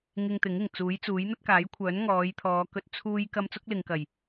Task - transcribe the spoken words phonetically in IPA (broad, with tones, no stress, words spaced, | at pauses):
ŋɪ˧ŋ t̪ɪ˨˥ŋɪ˨˩ŋ t͡suː˨˥jt͡suː˨˥j n̪ɐ˥t̚kaː˨˥jkʷʰœː˨˥n ŋɔː˨˧jt̪ʰɔː˨˧kɵ˧t̚ t͡sʰuː˥j kɐ˥m t͡sʊ˥k̚lɪ˨ŋkɐ˨˩j